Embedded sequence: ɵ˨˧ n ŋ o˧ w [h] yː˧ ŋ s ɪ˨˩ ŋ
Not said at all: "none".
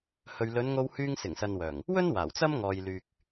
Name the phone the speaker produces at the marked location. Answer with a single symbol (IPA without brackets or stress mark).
h